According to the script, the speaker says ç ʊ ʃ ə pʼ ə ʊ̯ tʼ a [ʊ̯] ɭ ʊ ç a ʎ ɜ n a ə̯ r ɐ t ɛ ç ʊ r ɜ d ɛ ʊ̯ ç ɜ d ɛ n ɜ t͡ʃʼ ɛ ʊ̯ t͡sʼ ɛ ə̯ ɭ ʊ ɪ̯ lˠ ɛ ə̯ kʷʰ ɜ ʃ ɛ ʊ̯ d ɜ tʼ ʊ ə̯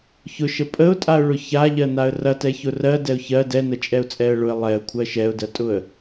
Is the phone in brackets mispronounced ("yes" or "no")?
no